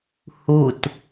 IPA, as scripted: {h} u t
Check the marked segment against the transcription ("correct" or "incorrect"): correct